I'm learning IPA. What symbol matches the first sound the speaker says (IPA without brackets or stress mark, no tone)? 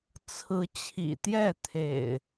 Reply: t͡sʰ